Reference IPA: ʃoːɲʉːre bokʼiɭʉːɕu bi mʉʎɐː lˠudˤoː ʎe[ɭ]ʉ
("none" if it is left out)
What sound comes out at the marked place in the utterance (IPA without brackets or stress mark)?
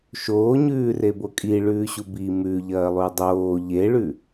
ɭ